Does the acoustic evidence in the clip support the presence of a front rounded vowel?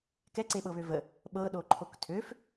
yes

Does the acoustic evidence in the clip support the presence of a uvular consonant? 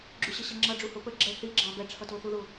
no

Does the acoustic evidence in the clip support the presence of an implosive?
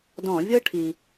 no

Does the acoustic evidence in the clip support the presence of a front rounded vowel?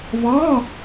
no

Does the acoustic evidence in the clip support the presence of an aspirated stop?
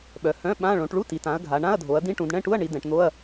no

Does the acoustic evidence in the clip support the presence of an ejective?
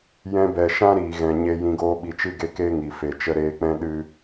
no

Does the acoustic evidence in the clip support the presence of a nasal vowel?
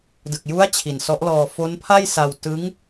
no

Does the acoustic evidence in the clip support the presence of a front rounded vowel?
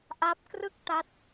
no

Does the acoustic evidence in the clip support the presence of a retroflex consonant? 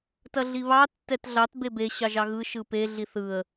no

